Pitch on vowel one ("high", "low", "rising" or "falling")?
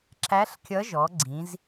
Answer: rising